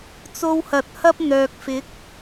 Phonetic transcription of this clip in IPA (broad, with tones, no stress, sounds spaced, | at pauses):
t͡s o˧ w h ɐ˨ t̚ h ɐ˥ p̚ n̪ œː˨ k̚ f ɪ˨˥ k̚